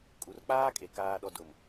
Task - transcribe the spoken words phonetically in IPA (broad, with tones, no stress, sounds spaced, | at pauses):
kʼ u˨ r k͡p aː˦ kʼ e˨ k aː˨ ɗ ɔ˨ d ʊ˨ m